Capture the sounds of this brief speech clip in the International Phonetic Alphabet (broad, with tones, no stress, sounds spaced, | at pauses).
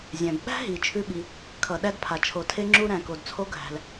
zʲ æ̃˩ b ɓ æ̤˥ ɦ i˩ t͡ʃʰ ʉ˥ ɓ i˩ | kʰ ʌ˩ ɗ æ˥ d pʰ a˩ t͡ʃʰ o˩ tʰ e˥ ŋ͡ǁ u˥ ɾ æ̃˩ k o˩ d t͡sʰ o˥ ɡʱ æ̤˩ l